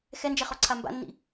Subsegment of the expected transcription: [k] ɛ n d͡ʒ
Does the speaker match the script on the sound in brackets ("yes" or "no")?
no